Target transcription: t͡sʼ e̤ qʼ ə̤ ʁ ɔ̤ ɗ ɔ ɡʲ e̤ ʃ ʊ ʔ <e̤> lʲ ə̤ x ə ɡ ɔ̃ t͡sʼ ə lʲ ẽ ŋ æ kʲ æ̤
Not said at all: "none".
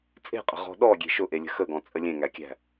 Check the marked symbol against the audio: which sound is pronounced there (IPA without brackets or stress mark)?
e